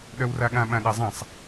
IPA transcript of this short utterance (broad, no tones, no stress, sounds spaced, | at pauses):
ɗ œ w r a ɠ ã ɓ ã ɗ a zˤ ã sˤ